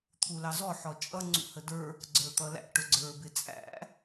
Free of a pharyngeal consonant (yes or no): no